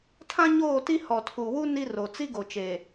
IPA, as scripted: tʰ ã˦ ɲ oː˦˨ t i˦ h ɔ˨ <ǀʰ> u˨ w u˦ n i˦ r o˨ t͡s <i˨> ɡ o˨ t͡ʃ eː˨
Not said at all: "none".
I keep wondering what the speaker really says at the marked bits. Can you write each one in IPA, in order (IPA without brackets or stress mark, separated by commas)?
tʰ, i˦